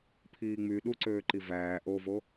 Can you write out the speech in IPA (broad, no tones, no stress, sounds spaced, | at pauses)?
pʰ iː ŋ͡m y ɗ u ǀ øː ǃ i v æː ʔ o v o